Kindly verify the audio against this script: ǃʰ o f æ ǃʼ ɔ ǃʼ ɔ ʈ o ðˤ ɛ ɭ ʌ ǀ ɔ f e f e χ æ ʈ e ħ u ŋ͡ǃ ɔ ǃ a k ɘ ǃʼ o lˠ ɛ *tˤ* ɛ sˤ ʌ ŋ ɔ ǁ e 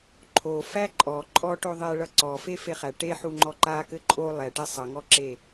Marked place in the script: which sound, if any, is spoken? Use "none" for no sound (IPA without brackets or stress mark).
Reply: ʈ